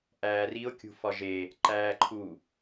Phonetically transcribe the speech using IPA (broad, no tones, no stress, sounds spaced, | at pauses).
ʔ æː r i o̯ kʲ ṳ f ɒ ʒ e | ǃ æː ǃʰ u